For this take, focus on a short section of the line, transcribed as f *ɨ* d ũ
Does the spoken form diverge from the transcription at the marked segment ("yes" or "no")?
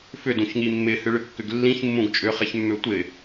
yes